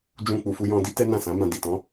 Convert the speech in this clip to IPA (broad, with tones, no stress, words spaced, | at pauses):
d͡ʒũ˧ k͡pu˨fu˧jɔ̃˧di˦ tɛ˦nã˦˨sã˨˦mã˧ di˨tɔ̃˨˦